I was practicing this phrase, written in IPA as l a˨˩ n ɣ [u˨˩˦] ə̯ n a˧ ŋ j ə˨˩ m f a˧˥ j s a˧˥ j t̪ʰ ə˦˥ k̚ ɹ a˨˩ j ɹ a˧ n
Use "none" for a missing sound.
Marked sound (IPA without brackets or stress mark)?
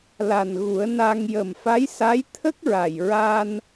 u˨˩˦